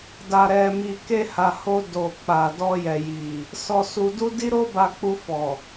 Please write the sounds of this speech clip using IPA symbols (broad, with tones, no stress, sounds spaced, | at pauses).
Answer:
d a˨ ɾ ɛ˨ m i˨ k e˧ h a˨ h o˧ d o˨ k͡p a˨ d ɔ˧ j ɛ˨ j i˨ | s ɔ˧ s u˧ d u˦ d i˦ ɾ o˦ b a˧ k͡p u˧ f ɔ˨